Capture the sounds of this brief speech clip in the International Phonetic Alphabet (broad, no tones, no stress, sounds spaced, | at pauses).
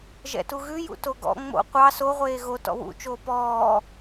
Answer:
ʒ ɛ̰ t u ɣ ʉ j ṵ t o ɡ ɔ̰ ŋ͡m o̰ qʷ ɑ s o ʁʷ eː ɣ o t ɔ̰ w ṵ t͡ʃ oː p ɔː